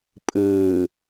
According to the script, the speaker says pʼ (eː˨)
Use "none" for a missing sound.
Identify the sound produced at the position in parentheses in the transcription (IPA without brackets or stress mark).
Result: ɘː˨